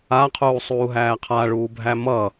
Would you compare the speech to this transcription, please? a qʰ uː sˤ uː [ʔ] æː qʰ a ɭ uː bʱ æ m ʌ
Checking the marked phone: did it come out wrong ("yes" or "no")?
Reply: yes